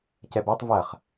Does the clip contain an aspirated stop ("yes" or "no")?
no